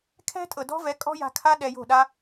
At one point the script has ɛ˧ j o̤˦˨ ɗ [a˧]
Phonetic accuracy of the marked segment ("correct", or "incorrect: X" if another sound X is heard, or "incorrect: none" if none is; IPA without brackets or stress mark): incorrect: a˦